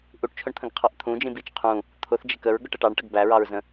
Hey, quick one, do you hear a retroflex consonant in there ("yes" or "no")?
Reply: yes